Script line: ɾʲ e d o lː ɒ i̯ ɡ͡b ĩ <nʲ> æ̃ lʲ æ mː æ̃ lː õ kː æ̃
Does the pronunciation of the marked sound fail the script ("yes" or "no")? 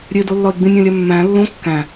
no